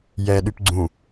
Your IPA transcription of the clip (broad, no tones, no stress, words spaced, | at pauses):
jɛɗyp ɡ͡ǀũ